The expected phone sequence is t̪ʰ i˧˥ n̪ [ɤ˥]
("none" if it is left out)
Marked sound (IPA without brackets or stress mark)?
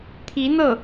ɤ˥˩